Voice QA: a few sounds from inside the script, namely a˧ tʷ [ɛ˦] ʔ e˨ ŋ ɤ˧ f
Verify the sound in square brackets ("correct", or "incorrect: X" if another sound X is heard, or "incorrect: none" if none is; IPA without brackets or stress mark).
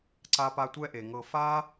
correct